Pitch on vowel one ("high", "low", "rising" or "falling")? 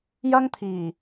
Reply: high